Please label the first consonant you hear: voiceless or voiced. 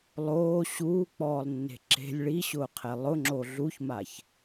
voiced